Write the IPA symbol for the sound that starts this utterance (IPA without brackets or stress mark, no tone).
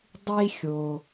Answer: dˤ